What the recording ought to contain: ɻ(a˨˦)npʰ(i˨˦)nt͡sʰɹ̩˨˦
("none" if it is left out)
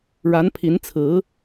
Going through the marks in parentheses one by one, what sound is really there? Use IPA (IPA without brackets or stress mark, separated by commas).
a˨˦, i˨˦